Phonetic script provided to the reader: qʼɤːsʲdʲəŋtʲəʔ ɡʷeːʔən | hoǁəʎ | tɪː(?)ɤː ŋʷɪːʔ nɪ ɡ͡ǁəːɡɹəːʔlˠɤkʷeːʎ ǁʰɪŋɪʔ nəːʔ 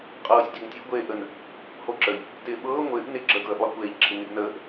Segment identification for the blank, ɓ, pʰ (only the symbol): ɓ